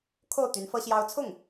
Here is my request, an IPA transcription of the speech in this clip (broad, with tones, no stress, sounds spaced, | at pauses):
kʰ o˥˩ ʊ̯ t̪ y˧˥ n f ɤ˥ ɕ j ɑ˥ ʊ̯ t͡sʰ ʊ˥˩ ŋ